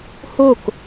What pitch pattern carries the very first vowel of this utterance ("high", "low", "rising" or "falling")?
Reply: falling